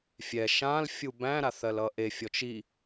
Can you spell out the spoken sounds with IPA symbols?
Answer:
fʲɛ ʃãlfʲu bæ̃ɾaθɜlʌ ʔefʲɔt͡ʃ i

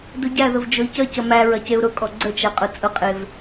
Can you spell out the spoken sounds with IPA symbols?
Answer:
duɟæðəv d͡ʒʊi̯cəcə mæ ɹɐceu̯ɾʊkʼɔ ɡ͡ǀət͡ʃæ qʼʊt͡sʼʊqʼev

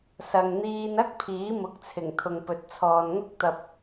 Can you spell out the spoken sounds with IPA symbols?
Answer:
sɐ˨ŋn̪iː˧n ɐ˥k̚ pʰiː˨˥mʊ˨˥k̚t͡sʰɪ˨˩ŋ t̪ʰʊ˨ŋpɵ˨t̚t͡sʰɔː˨nŋʊ˥k̚ t̪ɐ˧p̚

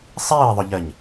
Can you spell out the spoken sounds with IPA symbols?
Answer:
sˤiːe̯ðˤʏʎɜɲ

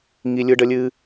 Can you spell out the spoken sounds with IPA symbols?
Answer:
ŋi˥lʲɯ˥ ɖə˥lʲɨ˥

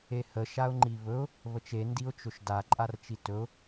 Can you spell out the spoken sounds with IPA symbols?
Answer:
ehə ʃaʊ̯ŋ͡ǃiβɵʊ̯ | βət͡ʃe ndiʊ̯t͡ʃɵʃda ǃʼart͡ʃitɵʊ̯

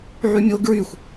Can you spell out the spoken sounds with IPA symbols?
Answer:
ʕymʲo ɡɹyxʷ

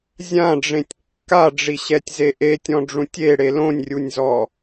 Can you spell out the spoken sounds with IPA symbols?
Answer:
zʲãɖ͡ʐẽtʲ kːaɖ͡ʐiɕɛtʲze ʔetʲɔ̃ɖ͡ʐũtʲ eɽe lõnʲrʲunʲzɔ

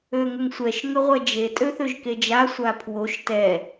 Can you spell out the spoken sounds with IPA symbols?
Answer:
øŋʏŋsʷɛʃ ŋʏʁʷɛd͡ʒe tʼøθøʒked͡ʒa sʷapʰwoʃ tɛ

